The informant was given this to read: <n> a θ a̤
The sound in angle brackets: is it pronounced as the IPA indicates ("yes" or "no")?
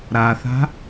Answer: no